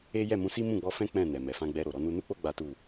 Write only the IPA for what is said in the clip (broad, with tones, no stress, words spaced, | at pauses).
e˦ jɛ˦˨mũ˧si˦ mũ˦˨ɡ͡bɔ˧fɛ̃˦ k͡pɛ̃˦˨nɛ˨ mɛ˨fã˧ɡ͡bɛ˧ɾo˨ ɾɔ˧nu˧nu˦k͡po˦ ɡ͡ba˦tu˦˨